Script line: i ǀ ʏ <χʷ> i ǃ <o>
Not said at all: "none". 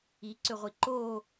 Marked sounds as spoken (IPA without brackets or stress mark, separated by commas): ʁʷ, o